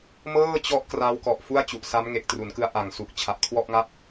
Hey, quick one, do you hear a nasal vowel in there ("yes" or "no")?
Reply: no